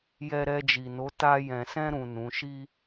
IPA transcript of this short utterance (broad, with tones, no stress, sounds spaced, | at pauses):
j ɛ˧ ɾ ɛ˧ d͡ʒ i˨ n o˨˦ t a˧ j ɛ̃˨ s ɛ̃˧ ɾ ũ˨ n ũ˨˦ ʃ i˦